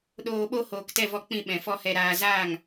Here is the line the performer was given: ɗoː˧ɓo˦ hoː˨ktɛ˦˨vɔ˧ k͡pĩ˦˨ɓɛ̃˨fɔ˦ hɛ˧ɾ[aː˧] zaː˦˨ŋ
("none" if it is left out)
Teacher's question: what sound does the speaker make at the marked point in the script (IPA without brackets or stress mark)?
aː˧